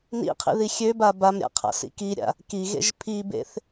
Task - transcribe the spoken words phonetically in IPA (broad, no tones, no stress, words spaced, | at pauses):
nḭqʰḭ ðixʲøba bamɾʲa̰ qʰa̰sḭkiɾʲa̰ | kiɣḛʒ pʰibḛθ